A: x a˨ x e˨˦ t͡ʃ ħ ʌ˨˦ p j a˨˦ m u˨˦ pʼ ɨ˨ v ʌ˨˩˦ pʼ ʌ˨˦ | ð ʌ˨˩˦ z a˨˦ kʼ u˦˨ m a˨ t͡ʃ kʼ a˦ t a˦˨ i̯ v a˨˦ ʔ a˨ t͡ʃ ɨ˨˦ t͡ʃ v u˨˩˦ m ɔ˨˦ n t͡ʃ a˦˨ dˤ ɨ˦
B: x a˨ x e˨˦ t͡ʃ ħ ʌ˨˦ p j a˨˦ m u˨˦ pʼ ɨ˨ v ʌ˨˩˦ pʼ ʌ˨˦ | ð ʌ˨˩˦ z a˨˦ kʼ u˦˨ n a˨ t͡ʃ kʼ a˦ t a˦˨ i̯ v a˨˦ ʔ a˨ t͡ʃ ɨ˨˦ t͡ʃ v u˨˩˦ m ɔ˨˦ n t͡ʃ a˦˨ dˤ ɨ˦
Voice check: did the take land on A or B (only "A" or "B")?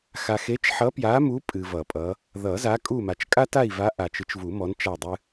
A